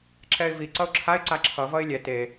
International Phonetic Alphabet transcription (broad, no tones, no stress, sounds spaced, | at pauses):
ǁ ɛ ɪ̯ v i ǀ ʌ ʊ̯ ǁʰ a ɪ̯ ǀ a ǁʰ ʌ v ʌ ɪ̯ lʲ ɛ t e